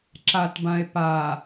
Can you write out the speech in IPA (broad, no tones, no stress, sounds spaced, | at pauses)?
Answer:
ǁ a t b ã e̯ p a